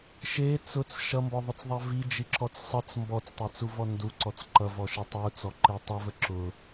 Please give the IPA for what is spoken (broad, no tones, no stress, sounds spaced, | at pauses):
ʃ e t͡s ʊ t͡s ʃ ʌ m b ɔ ðˤ ʊ t͡s ðˤ a v i d͡ʒ i ǁ ɔ t͡s sˤ ʌ t͡s m b ɔ t͡s tˤ e t͡s u v ɔ n d u ǀ ɔ t͡s ǃ ʌ v ɔ ʃ ə tˤ u t͡s ɔ ǃ e tˤ ʌ v ə ǁ ʊ